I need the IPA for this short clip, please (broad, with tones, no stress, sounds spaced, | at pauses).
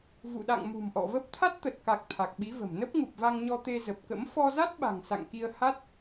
v ṵ˧˨ ɗ a̰˧˨ ŋ m ṳ˨˩ m ʔ ɔ̰˧˨ v ə˦˥ p̚ t̪ʰ a˦˥ t̚ t̪ ə˨˩ t̚ k a˨˩ k̚ t̪ʰ a˨˩ k̚ ɓ i˨˦ v ə̤˨˩ m n ə˦˥ p̚ ŋ u˨˩ p̚ v a˧ ŋ ɲ ɔ˧ t̪ e˧ z ə˨˩ p̚ k ə̰˧˥ m f ɔ˧ z a˦˥ t̚ ɓ a̤˨˩ ŋ s a̰˧˨ ŋ k i˧ ə̯ h a˦˥ t̚